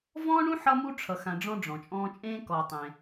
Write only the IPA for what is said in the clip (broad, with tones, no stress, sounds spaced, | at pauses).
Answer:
v ɔ̃˥ ɳ ũ˥ ħ ʌ˦ m u˦ ʈ͡ʂʰ ʌ˨ x ã˨ ɖ͡ʐ ɔ̃˥ ɖ͡ʐ ɔ̃˩ t͡ʃʼ ɔ̃ː˦ t͡ʃʼ ẽː˥ k ɔ˨ tˤ ẽ˨